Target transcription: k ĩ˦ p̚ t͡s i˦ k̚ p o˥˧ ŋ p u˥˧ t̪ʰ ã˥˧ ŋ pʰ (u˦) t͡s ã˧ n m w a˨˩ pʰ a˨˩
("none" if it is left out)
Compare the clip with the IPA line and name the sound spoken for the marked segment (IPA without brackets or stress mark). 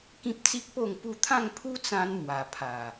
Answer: u˦